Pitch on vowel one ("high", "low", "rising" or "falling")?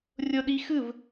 high